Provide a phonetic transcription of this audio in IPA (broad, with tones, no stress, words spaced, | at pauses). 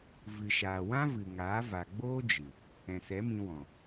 vɨ˨ʃaː˨wã˦vɨ˨ ŋaː˨˦va˨ ɡ͡boː˦d͡ʒɨ˨ | ɛ̃˨sɛ˨˦mĩ˧wɔ̃˨